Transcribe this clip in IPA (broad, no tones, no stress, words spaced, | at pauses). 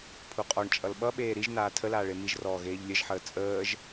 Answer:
pʰuqʼɔɳt͡ʃʼʌl ɓʌɓeː ɾiʒ naːtʰəlaːɭ emiʒrɔː ɣeːʎlʲəʒħəː t͡sʼəːʒ